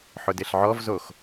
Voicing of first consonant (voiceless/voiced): voiceless